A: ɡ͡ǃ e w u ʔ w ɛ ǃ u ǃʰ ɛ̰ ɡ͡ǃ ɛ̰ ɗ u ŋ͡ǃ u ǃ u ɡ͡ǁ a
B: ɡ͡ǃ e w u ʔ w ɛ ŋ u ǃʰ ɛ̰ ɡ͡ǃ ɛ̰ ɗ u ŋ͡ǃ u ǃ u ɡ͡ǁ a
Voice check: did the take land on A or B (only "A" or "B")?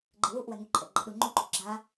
B